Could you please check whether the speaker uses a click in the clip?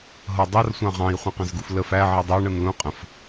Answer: no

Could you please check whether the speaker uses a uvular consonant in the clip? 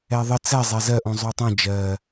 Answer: no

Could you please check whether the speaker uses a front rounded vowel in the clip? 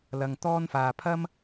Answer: no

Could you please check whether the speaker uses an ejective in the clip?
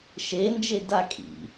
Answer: yes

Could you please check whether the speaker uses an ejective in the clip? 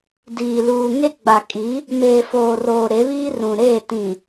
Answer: yes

